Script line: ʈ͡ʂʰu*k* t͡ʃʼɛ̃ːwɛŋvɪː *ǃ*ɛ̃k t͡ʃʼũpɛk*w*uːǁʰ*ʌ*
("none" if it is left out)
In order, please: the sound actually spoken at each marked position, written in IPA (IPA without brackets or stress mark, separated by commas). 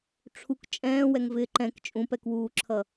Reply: k, ǃ, w, ʌ